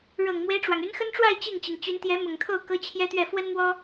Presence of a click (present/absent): absent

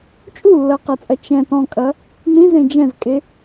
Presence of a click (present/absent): absent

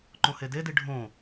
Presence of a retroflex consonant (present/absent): present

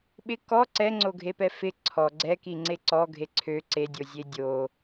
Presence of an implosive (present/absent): present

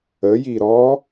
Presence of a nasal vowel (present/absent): absent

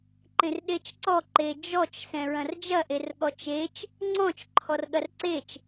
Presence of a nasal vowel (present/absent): present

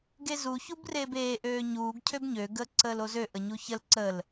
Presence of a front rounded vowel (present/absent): present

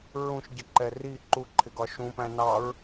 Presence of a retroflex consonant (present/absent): absent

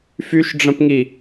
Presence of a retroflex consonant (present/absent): present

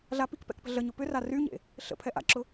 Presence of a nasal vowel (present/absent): absent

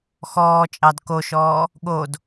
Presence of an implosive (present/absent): present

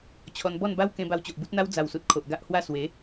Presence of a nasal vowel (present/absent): present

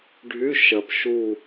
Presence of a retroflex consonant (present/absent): present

